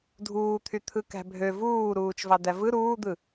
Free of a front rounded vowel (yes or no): no